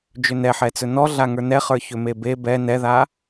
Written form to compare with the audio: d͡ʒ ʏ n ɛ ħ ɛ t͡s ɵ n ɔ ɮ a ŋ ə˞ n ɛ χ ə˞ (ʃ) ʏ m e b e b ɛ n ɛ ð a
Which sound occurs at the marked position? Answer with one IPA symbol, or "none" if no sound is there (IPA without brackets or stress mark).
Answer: ç